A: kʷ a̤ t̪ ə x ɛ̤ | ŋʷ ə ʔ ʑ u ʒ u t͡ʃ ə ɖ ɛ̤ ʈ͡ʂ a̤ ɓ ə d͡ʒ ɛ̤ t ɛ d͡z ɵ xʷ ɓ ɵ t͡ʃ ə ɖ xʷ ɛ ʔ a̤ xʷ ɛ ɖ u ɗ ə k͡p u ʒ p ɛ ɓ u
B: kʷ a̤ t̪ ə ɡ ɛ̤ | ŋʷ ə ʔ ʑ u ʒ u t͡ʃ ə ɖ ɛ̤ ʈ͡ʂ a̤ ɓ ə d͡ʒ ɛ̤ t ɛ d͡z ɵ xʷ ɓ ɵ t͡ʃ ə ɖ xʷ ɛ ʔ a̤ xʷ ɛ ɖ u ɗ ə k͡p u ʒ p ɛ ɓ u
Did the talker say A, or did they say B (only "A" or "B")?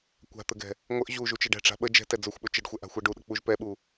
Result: B